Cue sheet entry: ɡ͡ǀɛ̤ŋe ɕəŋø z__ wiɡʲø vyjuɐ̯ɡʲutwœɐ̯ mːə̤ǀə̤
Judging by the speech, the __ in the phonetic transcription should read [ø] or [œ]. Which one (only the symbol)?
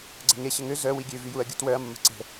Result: œ